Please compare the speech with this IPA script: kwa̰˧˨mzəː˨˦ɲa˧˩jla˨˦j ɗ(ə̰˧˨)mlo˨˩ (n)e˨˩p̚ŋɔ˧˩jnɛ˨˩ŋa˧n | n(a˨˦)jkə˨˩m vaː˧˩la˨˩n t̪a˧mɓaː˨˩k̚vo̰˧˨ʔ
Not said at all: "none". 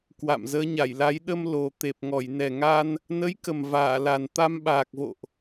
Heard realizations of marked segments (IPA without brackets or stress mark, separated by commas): ə˧, t̪, ə˨˦